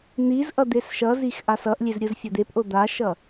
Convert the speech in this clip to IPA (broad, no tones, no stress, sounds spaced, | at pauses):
n̪ i z ʔ ʌ d̪ e s ʃ ʌ z i x ʔ a s ʌ ʔ lʲ e z ɾʲ ɯ z fʲ o d̪ e p ʔ o d̪ a ʃ ʌ